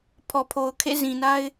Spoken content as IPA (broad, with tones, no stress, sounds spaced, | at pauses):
pʰ ɔ˨ pʰ o˨ ʊ̯ kʰ ḛ˦˨ z ĩ˨ n a˦ ɪ̯